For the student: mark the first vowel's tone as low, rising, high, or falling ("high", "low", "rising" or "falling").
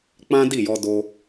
high